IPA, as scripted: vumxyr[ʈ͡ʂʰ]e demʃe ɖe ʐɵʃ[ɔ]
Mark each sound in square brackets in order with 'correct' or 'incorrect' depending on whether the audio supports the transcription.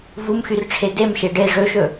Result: correct, incorrect: ɵ

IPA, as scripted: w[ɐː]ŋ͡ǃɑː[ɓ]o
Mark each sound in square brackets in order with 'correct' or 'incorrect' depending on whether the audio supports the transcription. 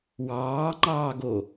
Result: incorrect: ɑː, incorrect: ɡ

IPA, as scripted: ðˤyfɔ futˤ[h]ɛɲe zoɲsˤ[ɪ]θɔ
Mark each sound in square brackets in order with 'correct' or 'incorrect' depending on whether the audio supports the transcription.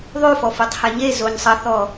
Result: correct, incorrect: ə

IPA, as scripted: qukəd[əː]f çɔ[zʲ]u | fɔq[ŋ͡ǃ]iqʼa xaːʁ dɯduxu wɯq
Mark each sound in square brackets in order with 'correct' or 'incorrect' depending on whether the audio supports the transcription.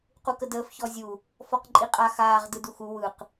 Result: correct, correct, incorrect: ǃʼ

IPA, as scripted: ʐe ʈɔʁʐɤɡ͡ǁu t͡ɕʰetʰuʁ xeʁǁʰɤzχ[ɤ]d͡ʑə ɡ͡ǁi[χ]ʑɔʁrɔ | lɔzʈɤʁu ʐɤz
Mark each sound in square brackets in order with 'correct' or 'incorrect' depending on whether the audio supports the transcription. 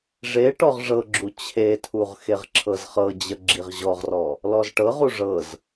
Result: correct, incorrect: ʁ

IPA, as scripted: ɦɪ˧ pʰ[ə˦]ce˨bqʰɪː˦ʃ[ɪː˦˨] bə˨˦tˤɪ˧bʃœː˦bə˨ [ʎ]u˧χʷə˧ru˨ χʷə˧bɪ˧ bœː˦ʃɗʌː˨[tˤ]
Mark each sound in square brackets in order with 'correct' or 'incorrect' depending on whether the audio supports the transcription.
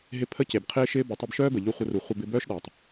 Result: correct, incorrect: ɪː˦, correct, correct

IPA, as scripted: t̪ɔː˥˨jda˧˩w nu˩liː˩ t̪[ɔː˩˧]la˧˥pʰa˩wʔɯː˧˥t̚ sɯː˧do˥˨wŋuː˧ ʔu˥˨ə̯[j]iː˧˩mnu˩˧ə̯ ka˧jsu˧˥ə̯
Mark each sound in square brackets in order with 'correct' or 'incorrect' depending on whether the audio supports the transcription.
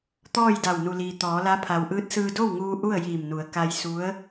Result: correct, correct

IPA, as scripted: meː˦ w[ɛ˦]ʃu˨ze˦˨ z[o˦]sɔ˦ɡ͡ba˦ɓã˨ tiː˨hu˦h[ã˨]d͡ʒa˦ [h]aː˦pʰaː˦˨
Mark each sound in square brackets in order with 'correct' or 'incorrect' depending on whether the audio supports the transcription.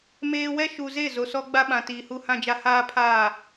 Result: correct, incorrect: o˨, incorrect: ã˦, correct

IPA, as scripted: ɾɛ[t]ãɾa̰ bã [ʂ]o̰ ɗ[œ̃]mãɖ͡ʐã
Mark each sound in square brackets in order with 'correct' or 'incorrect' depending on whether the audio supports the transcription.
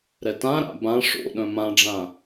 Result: correct, correct, correct

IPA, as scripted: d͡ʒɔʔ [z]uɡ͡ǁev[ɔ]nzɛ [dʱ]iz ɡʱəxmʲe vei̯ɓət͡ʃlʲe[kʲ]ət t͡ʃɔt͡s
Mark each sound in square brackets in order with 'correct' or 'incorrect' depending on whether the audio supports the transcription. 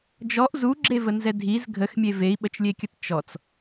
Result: correct, incorrect: ə, correct, correct

